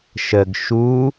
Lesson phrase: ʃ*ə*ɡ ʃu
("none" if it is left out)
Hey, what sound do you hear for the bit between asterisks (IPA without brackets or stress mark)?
ə